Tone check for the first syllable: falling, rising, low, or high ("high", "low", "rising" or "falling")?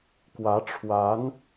rising